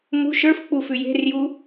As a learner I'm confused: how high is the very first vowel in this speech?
high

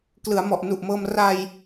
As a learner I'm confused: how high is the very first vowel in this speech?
high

